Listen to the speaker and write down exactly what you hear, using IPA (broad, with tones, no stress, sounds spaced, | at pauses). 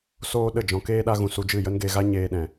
s oː˦ ɗ ə˦˨ d͡ʒ ɔ̃˧ k eː˦ ɗ a˦ ɣ ũ˧ s u˧ d͡ʒ ɨ˦˨ j ə˦ n ɡ e˧ ɣ a˦ ɲ eː˧ ɗ ɛ̃˨